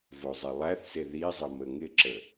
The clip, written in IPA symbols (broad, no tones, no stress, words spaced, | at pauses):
vozˤelˠæθse ðizˤə məŋɪǁə